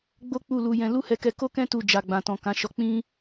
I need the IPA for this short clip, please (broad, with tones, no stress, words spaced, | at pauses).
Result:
ɡ͡bo˦ k͡pu˦˨lu˧jɛ̃˧ lu˦hɛ˧kɛ˧ ko˦kɛ̃˦ tu˦˨ d͡ʒa˨ɡ͡bã˨tɔ̃˨ kã˨˦ʃɔ˧k͡pĩ˦